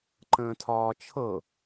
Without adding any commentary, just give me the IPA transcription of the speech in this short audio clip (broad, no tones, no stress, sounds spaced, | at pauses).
ǃ ə̃ː tʰ ɒː t͡ʃʰ ɤ